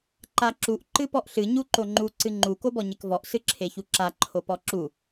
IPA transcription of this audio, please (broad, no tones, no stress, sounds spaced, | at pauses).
ǃ a ǁ u ʔ ǃ ɨ p ɔ ʔ ɬ ɨ ɲ u ǃ o ŋ͡ǃ u ǀ ɨ ŋ͡ǃ u k o b ɔ ɲ e k v ɔ ʔ s ɨ ǁʰ e ç u ǁ a ǃʰ o p ɔ ǁ u